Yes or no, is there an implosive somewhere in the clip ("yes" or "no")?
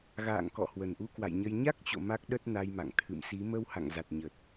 yes